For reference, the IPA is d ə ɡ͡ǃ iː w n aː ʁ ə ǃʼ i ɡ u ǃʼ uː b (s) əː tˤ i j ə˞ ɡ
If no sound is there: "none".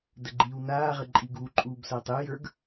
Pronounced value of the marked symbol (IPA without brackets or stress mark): s